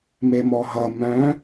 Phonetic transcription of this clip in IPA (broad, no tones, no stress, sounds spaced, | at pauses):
m e m ɔ ɦ ʌ m œ̃